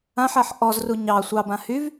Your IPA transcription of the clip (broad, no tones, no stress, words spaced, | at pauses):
ãħaħ ʔɔzru ɲɑ sʷɑbã hyv